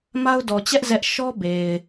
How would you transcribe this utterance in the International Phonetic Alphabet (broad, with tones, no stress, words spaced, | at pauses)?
ma˦ʊ̯dɔ˨ t͡ɕɛ˦ʔ zɛ˦ʔ ʃɔ˦be˨ɪ̯